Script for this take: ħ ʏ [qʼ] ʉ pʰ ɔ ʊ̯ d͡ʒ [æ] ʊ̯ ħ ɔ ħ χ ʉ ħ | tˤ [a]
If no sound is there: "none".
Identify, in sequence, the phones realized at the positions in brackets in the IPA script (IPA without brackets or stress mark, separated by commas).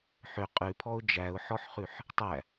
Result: qʼ, æ, æ